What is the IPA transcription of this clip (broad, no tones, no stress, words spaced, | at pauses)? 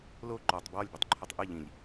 lo ǃɔtˤ bwɔlʲbutˤ ǃʰɔtˤʔɨ ʎĩlʲ